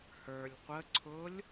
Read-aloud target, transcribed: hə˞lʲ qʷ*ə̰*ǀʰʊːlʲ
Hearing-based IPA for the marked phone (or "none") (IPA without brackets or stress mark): ə